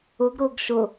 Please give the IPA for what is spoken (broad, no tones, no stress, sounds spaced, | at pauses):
ʊ ɡ ɾ ʊː ɡ ʃ ʊ